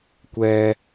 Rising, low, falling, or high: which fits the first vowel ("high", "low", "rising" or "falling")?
low